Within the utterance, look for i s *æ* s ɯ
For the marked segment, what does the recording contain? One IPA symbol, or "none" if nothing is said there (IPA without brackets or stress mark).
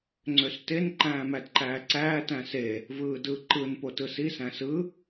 æ̃